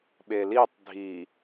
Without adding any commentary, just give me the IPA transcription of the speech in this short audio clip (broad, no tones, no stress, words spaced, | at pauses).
ɓelitˤ dʱi